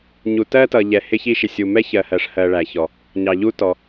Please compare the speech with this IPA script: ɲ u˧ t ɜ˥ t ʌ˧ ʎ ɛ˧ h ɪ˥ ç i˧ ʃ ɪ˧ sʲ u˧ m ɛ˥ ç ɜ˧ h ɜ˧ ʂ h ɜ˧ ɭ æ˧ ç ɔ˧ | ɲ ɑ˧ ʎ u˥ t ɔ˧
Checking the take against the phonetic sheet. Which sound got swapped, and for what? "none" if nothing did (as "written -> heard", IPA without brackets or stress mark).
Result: i˧ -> i˥